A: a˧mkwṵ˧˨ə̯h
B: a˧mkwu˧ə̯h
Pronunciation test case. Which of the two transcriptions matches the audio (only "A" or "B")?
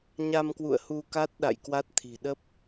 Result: A